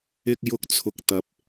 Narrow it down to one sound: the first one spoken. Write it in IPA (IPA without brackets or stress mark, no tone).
ɪ